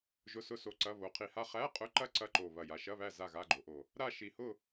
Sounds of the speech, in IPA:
ʒ ʊ˧˥˧ s ʊ˥˨ s o˧˥˧ ǀ ɐ˧˥˧ β o˩˧ qʰ i˨˩ h a˥˨ χ æ˧˥˧ qʼ ʊ˧˥˧ ǃ ɐ˥˨ ǀ ɐ˧˥˧ ǃ o˨˩ β ɐ˨˩ j a˩˧ ʃ ɐ˧˥˧ β æ˥˨ z a˥˨ ɣ a˧˥˧ ɡ͡ǃ o˩˧ ʔ o˨˩ | ɾ a˥˨ ʃ i˨˩ h ʊ˥˨

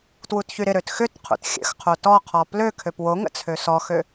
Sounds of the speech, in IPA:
t w u t ç y ɾ ɪ ɾ ø t x ʏ t qʰ ṵ t xʲ ə̰ x qʰ o t ɔ qʰ ɔ p l ø kʰ ø p w o ŋ ə̰ t͡sʰ ø s ɔ x ø

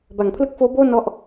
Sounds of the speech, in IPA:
b a˩˦ ŋ pʰ l ɯ˦˥ k̚ f oː˦˥ b oː˥˩ n ɔ˥˩ ʔ

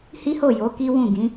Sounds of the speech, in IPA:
h i˦ h o˦˨ j o˨˦ k i˦ w ũ˦˨ ɡ ĩ˨˦

